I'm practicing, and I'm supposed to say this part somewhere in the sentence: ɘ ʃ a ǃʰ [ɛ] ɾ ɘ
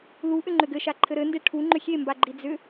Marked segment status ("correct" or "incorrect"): incorrect